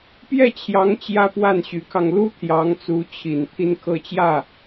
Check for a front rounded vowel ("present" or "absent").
present